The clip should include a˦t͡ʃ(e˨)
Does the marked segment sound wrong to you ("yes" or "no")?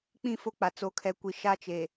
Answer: no